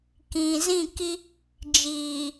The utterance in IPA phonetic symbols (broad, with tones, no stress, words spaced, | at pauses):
kĩ˨ zĩ˦˨ki˦ | d͡ʒiː˨